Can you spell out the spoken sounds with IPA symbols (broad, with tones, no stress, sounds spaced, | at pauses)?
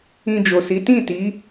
ĩ˧ d͡ʒ o˨ s i˨˦ t ĩ˦˨ t i˨˦